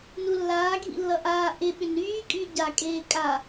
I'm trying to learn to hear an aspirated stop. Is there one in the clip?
no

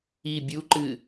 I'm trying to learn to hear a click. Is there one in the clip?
yes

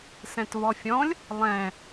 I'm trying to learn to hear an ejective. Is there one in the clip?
no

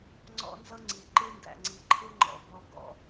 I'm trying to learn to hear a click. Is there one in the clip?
yes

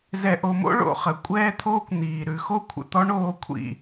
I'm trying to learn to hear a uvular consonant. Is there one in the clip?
yes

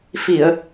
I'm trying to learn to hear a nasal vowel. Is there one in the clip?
no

